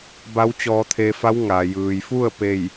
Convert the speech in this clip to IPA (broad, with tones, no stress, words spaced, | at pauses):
ba˧˥wt͡ɕɔː˧t̪ʰe˧fa˧˥w ŋa˩jɯː˩jfu˥˨ə̯ pe˥˨j